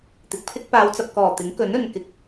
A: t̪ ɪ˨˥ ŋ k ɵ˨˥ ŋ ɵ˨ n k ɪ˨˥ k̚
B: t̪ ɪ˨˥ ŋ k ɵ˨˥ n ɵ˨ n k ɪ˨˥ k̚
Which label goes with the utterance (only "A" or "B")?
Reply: B